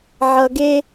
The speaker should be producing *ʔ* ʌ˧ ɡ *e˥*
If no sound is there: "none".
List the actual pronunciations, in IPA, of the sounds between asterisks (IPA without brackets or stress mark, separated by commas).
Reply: ʕ, e˥